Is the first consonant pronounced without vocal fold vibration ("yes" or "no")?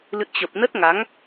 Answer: no